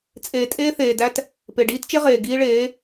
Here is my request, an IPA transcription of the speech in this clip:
t͡sʼ eː˨ tʼ eː˦ θ eː˨ d æ˦ t | p e˨ ɖ iː˦ t t͡ʃ e˦ ʁ eː˨ ɡ iː˦ ɭ eː˨˦

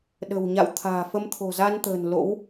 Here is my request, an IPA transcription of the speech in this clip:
ɗ ə̤˨˩ w ɲ a̰˧˨ w t̪ʰ a̤ː˨˩ f ə˧ m t̪ʰ o̤˨˩ z a˧ n t̪ ə̤ː˨˩ n l o̰˧˥ w

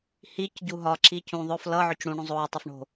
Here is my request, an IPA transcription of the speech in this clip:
h i c ɟ u ɦ ɒ ǁ i c ũ ðˤ ʊ f l ʌ ʕ ʊ c ɽ ũ ɳ ũ zˤ oː tˤ ʌ f ɳ o̤

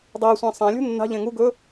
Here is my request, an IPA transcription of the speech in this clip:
dˤ e sʷ ɛ̃ sˤ ɛ̃ lʲ ṳ nː a̤ ʎ ẽ ŋ u ɡ ɵ

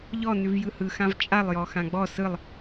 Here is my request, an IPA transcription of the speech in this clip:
ʎ ɔ n ʉ v j ɯ h ɯ x ã v t͡ʃʼ a lˠ j ɔ x ã ɡ͡b ɔ s ɯ lˠ

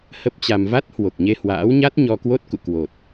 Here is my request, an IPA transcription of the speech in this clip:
h ə˦˥ p̚ t͡ɕ a˧ m v a˦˥ t̚ h w o˨˩ k̚ ɲ e˧ h w a̰ː˧˥ w ɲ a˦˥ t̚ ɲ ɔ˧ k w o˦˥ t̚ k ṵ˧˨ k w o˨˩ t̚

